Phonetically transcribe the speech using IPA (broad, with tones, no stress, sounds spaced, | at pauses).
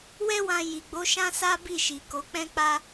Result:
w ɛ˦ w ã˧ j i˨ ɡ͡b o˨˦ ʃ ã˦ s a˦ b i˦˨ ʃ i˨ k o˨˦ k͡p ɛ̃˦ k͡p a˦